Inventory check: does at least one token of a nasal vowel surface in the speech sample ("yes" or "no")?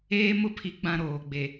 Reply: yes